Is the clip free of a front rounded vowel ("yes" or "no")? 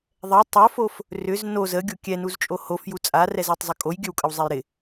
no